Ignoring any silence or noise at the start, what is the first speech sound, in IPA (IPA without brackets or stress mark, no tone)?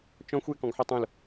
t͡ʃ